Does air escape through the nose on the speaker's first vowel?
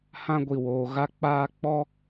yes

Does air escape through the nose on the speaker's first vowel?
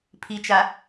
no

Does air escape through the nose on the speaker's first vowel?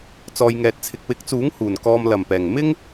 no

